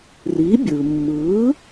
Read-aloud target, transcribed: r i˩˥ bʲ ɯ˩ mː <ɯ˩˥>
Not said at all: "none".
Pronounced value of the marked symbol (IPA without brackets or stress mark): ɯ˩˥